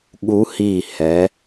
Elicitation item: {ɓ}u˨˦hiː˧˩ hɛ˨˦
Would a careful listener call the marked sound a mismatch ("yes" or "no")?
yes